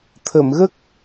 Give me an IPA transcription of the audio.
t̪ʰ ə˨˩˨ m ɣ ə˦˥ k̚

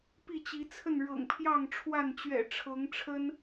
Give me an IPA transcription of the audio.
p i˥˨ t͡ɕ i˨˦ t͡sʰ ə˥˨ n ɻ ɤ̰˨˩ ŋ pʰ j ɑ˥˨ ŋ ʈ͡ʂʰ w a˥˨ n t͡ɕ ɥ ɛ̰˨˩ ʈ͡ʂʰ ɤ˨˦ ŋ ʈ͡ʂʰ ə˦ n

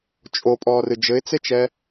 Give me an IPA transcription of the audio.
t͡ʃʼ o pʼ ɔː r ɨ d͡ʒ ɘ ɪ̯ t͡s e t͡ʃ ɛ

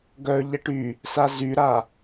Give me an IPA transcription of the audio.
ɡ œ ʎ ɛ ʈ y | s a z y ɾ a

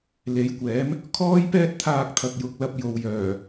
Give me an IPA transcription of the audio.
l e˨˥ j kʷ ɛː˨˥ m | kʰ ɔː˥ j p ɛː˥ t̚ t̪ʰ aː˧ k̚ t̪ʰ ɐ˨ k̚ j ʊ˨ k̚ l ɐ˧ p̚ j o˨ w j œː˨˩

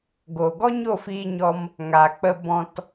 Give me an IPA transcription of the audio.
ɡ o˨ ɡ ɔ˦ ɲ o˦˨ f iː˧ ɲ ɔ˧ m | ŋ a˨ k͡p ə˧ b ɔ̃˧ t

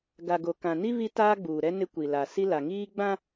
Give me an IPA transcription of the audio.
ɡ a˨ ɡ o˨ k ã˨ n i˦ β i˦ t aː˦ ɡ͡b uː˨ ɾ ɛ˦ n ɪ˦ kʷ i˨ l a˨ s i˦ l a˨ ŋ iː˦ ɡ͡b ã˦

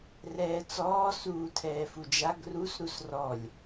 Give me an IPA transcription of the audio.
r ɛː t͡s ɔː s uː tʰ ɛː f u d͡ʒ a ɡ r u s ɾ u s r ɔ lʲ

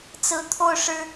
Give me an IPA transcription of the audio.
t͡s ɹ̩˧˥ t̪ʰ o˥˩ ʊ̯ ʂ ɻ̩˥

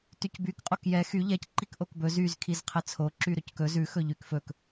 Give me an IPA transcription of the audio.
t y c b y k qʼ o k j ɛ x y ʎ ɛ c ǃ i k ʔ o k b ɵ z y z kʰ i z qʰ ɛ t͡sʰ o ǁ y ɾ ɵ c k ɵ z ʉ x ɵ ʎ y k f ɵ k

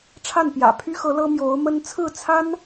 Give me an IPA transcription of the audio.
ʈ͡ʂʰ a˥˩ n p j ä̰˨˩ pʰ y˥ x ɤ˧˥ l ɤ˥ m j o˧˥ ʊ̯ m ə˥ n t͡sʰ ɹ̩˥˩ t͡sʰ a˥ n

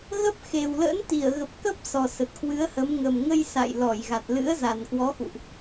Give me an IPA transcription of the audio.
ɣ ə˦˥ p̚ x e˨˩ w l ə̰˧˥ n t̪ i˧˩ ə̯ ɣ ə˨˩ p̚ k ə˦˥ p̚ s ɔ˨˩ s ə˨˩ t̚ k w ɨ˨˦ ə̯ h ə˨˦ m ŋ ə˨˩ m ŋ ə˧ j s a̰˧˨ j l ɔ˧˩ j ɣ a˨˩ t̚ l ɨ̰˧˥ ə̯ z a˨˩ n k w ɔ˨˦ x ṵ˧˨ ʔ

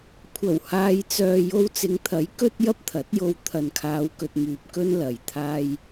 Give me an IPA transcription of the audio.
kʷʰ ɐ˨˩ w h aː˨ j t͡s œː˨ j o˧ w t͡s ɪ˨˧ ŋ t̪ʰ ɐ˨˥ j k ɵ˥ t̚ j ɐ˥ p̚ t̪ʰ ɐ˨˥ t̚ j o˧ w t̪ʰ ɐ˨ n kʰ aː˨˧ w k ɵ˨ t̚ m yː˨ p̚ k ɵ˥ n l ɐ˨ j t̪ʰ aː˧ j

